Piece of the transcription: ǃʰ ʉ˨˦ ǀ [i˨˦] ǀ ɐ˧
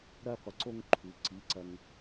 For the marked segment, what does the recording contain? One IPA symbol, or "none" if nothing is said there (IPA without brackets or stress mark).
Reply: i˨˦